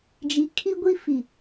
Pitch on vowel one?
low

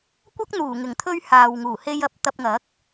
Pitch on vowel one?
high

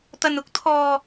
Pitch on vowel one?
low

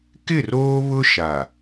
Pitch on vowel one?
falling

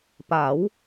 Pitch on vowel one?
rising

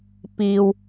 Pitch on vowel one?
low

